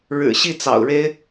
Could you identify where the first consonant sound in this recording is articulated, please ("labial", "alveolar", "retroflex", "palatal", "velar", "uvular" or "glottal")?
retroflex